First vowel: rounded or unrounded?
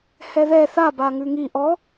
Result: unrounded